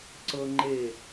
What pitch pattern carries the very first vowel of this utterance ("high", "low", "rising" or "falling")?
high